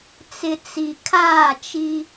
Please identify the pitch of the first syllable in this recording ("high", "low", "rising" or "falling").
low